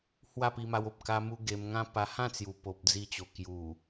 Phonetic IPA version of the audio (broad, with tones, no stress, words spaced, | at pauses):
hwa˥˧pi˧ma˧wo˨p̚ ka˧mu˧ ɡe˧mŋã˦ pa˧hã˥˧ t͡sju˨˩po˨p̚ d͡zi˧t͡ɕo˨˩ kju˨˩